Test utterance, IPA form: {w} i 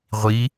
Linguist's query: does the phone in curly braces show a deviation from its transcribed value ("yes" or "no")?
yes